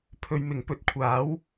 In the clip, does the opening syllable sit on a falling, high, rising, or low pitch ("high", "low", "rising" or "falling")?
low